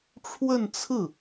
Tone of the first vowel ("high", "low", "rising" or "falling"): falling